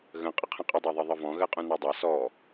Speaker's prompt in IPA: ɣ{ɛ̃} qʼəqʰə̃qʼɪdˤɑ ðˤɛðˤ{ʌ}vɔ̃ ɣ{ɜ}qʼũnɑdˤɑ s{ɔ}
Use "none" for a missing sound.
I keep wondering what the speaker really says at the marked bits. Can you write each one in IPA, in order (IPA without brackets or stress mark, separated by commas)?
ə̃, ʌ, ɜ, ɔ